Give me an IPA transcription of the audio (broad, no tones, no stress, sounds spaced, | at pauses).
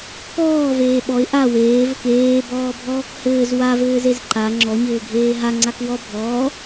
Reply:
k ɔː v eː ɓ ɔ ɪ̯ ʔ a w eː v ɘ k eː b ɔː bʱ ɔː k h ɘː z w a v ɘː z e z ǃ a ŋ͡ǁ ɔ ɲ ɘː ɡʱ eː ɦ a ŋ͡ǀ a k w ɔ bʱ ɔː